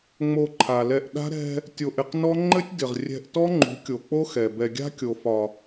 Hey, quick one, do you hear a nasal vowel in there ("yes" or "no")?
no